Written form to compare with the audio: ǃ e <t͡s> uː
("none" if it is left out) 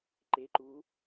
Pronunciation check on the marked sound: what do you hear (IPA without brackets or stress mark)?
ǃ